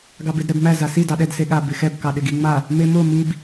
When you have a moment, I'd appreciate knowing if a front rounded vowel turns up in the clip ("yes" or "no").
no